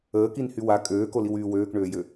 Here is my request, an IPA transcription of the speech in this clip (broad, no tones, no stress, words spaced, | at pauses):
əːkinhy wa kʼøːkoliwyː wøːkɳøːjø